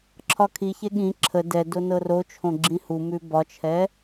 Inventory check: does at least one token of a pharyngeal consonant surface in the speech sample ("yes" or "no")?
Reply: no